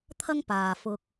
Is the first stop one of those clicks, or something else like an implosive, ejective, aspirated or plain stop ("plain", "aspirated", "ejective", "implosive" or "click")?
aspirated